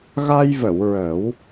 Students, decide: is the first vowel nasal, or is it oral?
oral